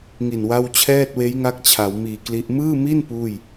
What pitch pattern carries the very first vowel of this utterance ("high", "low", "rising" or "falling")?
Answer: low